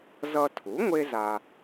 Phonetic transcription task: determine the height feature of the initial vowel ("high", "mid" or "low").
mid